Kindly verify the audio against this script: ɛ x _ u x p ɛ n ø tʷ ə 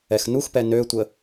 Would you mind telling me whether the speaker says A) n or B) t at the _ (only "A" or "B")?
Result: A